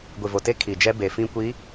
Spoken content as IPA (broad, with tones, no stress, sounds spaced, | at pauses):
ɡʷ i˨ v o˨ t e˦ kʰ i˨ d͡ʒ ɛ˦ b e˨ f ĩ˦ kʷ i˨˦